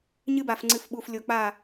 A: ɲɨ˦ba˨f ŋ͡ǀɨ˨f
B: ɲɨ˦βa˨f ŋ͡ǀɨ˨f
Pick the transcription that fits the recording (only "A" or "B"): A